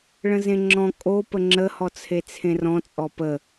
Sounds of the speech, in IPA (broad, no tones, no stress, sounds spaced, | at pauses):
ɭ ə̃ z ẽ ŋ͡ǁ ɔ̃ kʼ o p ə ŋ͡ǁ ə h ɔ t͡sʰ e t͡sʰ ẽ r ɔ̃ t͡sʼ ɔ p ə